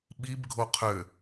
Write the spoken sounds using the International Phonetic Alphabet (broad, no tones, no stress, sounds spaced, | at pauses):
ɓ i b ɡʱ o qʰ ø